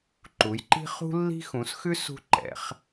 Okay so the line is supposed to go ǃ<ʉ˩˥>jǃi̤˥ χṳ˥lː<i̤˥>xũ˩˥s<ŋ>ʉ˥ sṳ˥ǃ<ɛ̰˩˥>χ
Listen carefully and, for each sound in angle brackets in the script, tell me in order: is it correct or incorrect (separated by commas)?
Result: incorrect, correct, incorrect, correct